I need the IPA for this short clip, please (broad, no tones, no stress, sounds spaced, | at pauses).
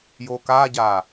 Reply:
j o k a ɟ a